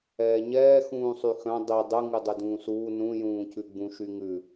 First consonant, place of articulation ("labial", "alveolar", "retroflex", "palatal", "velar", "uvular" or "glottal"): palatal